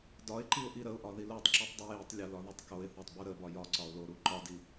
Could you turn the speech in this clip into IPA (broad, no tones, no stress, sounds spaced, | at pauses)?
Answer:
d ɒ ɪ̯ ǃ i ʊ̯ ʔ i ɾ ə ʊ̯ ʔ ɒ ð i l o tˤ ǁ i tˤ dˤ u j i tˤ lʲ ɒ l ɒ ð o tˤ k o ɪ̯ θ o tˤ b u ɾ ə b ɒ j ɒ ǀ ɒ ʊ̯ l o ɾ u ǃ ɒ d i